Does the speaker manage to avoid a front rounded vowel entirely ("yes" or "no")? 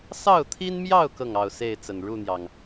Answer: yes